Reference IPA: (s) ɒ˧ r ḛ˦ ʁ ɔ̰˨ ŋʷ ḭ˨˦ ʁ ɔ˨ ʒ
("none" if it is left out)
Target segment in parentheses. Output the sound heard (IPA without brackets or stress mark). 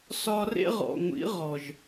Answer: s